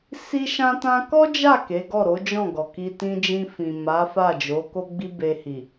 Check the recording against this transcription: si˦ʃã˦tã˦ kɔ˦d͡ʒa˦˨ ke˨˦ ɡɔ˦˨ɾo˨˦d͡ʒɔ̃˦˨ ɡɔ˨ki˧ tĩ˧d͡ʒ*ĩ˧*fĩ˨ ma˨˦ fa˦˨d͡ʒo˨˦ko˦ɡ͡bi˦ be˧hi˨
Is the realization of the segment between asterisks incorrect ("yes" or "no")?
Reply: no